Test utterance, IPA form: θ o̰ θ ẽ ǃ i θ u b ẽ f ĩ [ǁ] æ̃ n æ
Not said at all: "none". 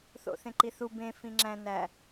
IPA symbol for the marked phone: ŋ͡ǁ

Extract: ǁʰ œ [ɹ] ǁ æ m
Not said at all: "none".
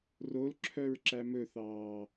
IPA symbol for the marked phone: ɹ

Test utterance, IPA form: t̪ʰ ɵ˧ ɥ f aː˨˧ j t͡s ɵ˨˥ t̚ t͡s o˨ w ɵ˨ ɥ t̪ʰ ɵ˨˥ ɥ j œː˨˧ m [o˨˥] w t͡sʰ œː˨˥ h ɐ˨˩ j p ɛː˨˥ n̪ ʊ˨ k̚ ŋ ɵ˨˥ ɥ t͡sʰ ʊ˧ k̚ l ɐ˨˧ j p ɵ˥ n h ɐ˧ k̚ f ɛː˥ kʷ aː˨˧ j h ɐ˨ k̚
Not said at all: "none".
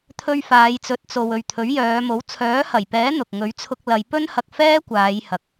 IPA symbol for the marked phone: o˨˥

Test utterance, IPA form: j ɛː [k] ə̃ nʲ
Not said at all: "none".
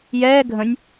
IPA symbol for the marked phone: ɡʱ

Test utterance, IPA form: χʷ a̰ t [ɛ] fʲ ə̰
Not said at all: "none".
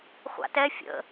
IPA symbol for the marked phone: ɛ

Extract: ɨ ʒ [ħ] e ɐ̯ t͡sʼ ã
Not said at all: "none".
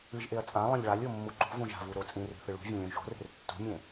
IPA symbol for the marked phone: ʔ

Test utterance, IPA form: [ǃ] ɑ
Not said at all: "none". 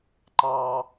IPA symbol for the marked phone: ǃ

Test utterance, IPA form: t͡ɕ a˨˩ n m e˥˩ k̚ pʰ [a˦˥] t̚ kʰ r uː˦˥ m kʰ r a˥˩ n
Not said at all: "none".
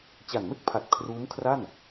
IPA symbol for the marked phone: a˨˩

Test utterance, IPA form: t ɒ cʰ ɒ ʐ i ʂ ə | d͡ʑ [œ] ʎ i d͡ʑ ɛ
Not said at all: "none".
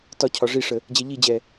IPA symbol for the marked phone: ɛ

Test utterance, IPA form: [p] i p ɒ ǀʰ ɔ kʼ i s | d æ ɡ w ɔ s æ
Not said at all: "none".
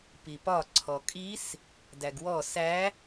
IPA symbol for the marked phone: p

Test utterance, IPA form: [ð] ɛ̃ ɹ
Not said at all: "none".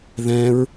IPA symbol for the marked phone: ð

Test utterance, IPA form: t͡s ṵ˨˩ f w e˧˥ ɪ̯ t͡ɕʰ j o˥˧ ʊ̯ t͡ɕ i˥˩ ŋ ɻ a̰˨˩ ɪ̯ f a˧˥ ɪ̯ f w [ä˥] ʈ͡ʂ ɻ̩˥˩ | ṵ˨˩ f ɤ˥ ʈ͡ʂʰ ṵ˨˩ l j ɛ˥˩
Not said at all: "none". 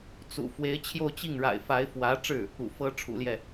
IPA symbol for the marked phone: ä˧˥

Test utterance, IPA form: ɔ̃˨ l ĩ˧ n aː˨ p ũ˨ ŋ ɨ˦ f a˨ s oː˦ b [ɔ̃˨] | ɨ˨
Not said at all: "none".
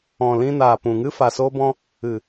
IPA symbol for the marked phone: ɔ̃˦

